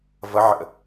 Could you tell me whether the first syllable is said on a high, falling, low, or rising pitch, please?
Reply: rising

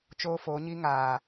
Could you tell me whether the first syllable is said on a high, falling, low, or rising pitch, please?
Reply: high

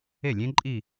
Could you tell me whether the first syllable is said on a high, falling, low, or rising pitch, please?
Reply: falling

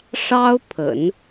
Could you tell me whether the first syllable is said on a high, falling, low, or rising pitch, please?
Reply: high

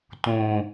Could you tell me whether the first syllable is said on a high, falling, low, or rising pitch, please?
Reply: low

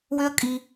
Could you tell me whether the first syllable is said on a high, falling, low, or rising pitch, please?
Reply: high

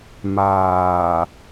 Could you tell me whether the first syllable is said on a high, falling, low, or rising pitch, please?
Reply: low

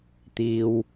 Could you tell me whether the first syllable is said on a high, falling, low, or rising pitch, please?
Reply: low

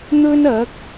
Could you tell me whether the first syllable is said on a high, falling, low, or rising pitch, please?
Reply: high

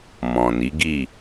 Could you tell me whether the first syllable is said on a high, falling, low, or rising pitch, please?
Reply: low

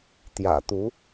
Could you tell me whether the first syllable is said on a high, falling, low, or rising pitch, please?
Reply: low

